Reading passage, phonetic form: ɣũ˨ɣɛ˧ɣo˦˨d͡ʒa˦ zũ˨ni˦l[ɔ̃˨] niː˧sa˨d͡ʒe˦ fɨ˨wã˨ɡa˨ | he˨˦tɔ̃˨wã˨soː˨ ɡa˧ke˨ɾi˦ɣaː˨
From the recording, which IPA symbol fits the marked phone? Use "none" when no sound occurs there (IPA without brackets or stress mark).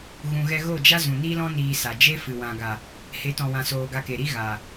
ɔ̃˦